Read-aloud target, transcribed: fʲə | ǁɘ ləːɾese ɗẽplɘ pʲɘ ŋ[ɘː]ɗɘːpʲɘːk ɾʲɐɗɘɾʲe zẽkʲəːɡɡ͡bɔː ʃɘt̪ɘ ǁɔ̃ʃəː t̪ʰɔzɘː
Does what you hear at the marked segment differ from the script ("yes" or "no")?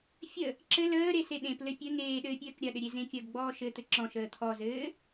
yes